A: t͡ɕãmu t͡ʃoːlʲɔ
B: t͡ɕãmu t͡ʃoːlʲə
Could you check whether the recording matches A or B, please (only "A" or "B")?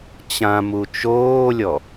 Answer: A